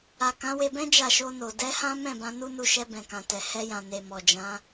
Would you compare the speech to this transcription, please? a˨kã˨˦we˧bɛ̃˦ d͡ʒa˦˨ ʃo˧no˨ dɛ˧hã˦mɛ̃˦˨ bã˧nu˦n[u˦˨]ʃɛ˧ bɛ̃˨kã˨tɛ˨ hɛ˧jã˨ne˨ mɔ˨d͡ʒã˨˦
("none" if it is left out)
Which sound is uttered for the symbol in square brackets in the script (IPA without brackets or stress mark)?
u˧